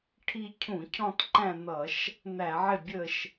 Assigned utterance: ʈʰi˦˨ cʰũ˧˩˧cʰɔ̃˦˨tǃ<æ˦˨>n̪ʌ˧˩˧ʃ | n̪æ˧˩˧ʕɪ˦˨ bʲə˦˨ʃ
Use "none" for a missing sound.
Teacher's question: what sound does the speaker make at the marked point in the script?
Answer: æ̃˦˨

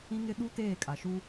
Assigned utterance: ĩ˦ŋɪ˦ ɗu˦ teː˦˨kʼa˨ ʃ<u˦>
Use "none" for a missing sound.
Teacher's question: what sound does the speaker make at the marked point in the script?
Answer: u˦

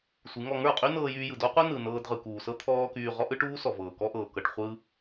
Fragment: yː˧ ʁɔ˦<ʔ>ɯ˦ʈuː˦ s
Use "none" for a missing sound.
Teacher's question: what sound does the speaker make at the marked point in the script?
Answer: ʔ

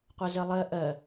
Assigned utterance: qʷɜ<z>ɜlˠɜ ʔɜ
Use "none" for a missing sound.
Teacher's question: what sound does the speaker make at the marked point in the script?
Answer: z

